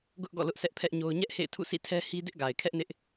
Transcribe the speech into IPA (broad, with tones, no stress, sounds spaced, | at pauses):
ɡ ʊ˦ ʔ ɡ ɔ̰˦˨ l ʊ˦ ʔ sʰ ɛ˦ ʔ pʰ ɛ˦ ʔ ɲ o˦ ʊ̯ ɲ ɛ˦ ʔ h ḛ˦˨ ɪ̯ tʰ ṵ˦˨ s ḭ˦˨ tʰ ɛ˦ h i˦ d ɪ˦ ʔ ɡ a˨ ɪ̯ kʰ ɛ˦ ʔ n ɪ˦ ʔ